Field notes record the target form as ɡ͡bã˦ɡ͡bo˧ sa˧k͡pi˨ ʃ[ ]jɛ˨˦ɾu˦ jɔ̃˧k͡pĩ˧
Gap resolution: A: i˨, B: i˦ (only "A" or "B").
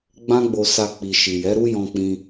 A